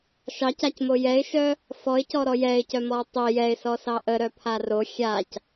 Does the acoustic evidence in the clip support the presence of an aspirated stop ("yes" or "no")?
yes